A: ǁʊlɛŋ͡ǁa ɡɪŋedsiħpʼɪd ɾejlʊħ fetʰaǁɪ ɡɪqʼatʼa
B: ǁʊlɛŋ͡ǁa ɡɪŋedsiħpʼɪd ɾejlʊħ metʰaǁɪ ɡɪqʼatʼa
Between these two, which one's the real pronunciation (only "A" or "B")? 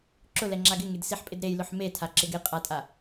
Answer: B